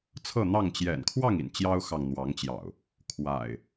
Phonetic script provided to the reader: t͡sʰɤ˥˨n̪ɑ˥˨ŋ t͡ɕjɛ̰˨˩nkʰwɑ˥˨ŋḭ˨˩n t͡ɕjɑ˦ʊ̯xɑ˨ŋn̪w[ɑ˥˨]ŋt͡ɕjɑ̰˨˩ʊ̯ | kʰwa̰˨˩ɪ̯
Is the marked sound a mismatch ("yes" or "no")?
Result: yes